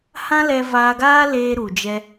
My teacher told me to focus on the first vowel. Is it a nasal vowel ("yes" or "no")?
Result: yes